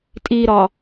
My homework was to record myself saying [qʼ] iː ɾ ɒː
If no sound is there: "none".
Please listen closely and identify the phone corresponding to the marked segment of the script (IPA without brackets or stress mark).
tʼ